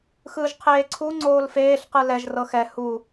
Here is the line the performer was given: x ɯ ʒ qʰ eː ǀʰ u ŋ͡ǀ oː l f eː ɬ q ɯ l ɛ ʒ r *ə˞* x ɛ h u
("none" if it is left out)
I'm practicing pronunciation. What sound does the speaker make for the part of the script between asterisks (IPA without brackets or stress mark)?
ɤ